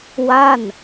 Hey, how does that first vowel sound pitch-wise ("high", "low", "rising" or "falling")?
falling